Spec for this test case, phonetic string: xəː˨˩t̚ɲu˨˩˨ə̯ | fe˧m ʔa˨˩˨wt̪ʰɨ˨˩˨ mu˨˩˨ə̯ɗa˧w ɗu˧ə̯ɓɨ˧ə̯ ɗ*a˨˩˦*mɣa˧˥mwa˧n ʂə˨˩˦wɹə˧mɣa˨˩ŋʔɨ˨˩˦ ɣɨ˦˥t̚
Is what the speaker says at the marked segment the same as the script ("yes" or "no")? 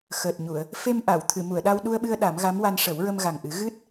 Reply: yes